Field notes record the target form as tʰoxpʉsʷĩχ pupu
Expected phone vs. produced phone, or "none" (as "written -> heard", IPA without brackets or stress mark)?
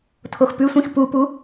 χ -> x